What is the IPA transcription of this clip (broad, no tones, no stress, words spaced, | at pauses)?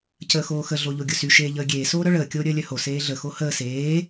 cəːxoːxə ɮoʎoɡʲʊsy ʃeːʎəːɡʲeː soːɾœɭəː kʲoːɾʲəːlʲœho seːɮə xohəː seː